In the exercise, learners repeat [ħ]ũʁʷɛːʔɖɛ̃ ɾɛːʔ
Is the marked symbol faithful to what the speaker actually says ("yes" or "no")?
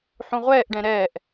yes